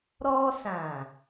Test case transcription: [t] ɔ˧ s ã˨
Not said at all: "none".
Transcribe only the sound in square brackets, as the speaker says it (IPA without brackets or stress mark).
ɾ